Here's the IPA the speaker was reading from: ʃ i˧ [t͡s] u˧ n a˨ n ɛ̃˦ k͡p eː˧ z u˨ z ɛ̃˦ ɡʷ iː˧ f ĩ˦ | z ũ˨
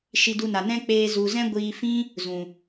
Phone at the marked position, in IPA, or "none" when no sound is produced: d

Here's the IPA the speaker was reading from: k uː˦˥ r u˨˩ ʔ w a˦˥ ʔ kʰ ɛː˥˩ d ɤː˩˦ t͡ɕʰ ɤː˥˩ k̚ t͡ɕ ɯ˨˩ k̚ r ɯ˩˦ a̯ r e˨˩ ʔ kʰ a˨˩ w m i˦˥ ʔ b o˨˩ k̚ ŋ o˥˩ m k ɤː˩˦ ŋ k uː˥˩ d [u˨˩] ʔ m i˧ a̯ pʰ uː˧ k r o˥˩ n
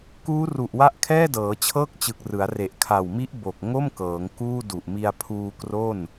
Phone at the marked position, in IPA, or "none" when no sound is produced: u˨˩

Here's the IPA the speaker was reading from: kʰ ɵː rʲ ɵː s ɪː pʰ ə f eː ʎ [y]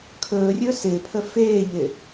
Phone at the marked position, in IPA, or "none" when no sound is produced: ɪ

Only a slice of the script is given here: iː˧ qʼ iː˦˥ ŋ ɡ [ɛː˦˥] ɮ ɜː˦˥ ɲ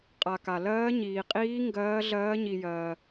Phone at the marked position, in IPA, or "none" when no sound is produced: ɜː˦˥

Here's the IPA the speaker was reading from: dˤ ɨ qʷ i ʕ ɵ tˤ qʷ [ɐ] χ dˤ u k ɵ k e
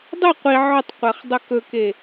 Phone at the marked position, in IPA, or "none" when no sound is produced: ɐ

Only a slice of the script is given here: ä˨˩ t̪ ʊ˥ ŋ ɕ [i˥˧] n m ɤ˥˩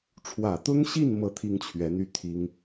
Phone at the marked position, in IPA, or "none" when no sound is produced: i˥˧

